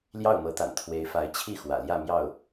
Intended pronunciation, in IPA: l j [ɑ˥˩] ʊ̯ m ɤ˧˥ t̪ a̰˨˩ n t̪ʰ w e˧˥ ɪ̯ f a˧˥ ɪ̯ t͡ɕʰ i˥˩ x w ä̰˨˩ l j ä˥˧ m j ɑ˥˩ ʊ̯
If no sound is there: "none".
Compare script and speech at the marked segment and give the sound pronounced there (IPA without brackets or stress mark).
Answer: ɑ˥˩